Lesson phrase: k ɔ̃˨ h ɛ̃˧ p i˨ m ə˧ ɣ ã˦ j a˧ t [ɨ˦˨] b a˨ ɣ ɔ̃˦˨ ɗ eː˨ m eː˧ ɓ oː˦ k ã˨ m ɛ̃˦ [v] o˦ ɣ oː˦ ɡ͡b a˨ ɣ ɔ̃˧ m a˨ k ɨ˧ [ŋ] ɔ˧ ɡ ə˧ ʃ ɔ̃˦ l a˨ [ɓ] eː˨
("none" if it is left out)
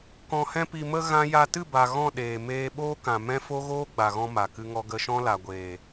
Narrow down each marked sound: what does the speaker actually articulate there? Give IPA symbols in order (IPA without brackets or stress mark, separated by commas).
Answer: ɨ˦˨, f, ŋ, ɡʷ